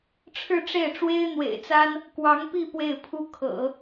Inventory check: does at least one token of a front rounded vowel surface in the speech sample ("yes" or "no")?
no